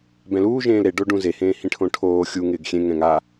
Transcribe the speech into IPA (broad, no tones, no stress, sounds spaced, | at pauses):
b ɛ̃ l uː ʒ ẽː l ɾ e ɖ o ɖ ũ z e h ẽː h ĩ ʈʰ õ ʈʰ oː xʲ u ŋ ɪː ɡ xʲ ẽ ŋ ɛ̃ ŋ a